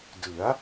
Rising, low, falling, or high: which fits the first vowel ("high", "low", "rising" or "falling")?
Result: rising